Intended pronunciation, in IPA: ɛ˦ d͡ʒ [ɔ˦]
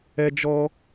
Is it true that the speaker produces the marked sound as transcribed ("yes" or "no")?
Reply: yes